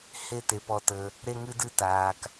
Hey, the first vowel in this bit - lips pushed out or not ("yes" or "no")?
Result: no